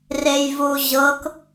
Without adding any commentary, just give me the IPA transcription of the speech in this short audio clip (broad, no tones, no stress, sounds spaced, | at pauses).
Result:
r e j v u ʑ ɤ k